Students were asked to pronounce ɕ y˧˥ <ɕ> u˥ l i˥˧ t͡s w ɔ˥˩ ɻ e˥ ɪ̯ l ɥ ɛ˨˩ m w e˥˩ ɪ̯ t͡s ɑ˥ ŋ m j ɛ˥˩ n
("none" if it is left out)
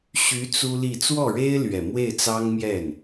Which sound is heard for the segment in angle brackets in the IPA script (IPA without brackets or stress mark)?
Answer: t͡s